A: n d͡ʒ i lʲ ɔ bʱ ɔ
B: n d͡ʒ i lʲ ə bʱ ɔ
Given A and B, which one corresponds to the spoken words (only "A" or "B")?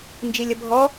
B